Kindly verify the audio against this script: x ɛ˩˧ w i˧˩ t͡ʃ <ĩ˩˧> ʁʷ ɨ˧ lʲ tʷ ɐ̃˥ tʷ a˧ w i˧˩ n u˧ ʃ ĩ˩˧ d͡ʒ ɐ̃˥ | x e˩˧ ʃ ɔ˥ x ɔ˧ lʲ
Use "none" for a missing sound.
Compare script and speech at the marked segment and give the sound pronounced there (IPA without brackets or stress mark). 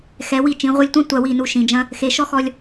ĩ˩˧